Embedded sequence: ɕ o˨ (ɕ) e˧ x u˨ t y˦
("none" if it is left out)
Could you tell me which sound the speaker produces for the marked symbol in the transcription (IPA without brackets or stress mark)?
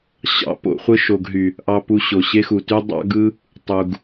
ɕ